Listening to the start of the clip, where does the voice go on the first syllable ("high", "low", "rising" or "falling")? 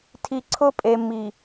low